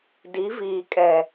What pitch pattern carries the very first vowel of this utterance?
rising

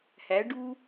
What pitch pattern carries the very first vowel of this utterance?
rising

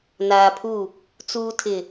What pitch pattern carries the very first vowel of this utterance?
low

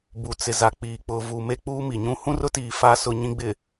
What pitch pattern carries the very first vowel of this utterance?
low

